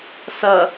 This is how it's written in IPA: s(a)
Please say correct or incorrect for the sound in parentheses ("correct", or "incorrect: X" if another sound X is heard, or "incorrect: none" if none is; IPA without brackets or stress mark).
incorrect: ʌ